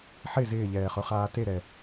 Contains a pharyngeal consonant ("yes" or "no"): yes